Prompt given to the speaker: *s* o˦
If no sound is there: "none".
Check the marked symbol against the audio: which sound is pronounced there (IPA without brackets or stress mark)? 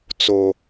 t͡s